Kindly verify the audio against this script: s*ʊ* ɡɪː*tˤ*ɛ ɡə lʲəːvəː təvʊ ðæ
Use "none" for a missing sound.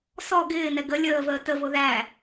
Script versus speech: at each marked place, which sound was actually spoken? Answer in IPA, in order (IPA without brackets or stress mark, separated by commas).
ɔ, n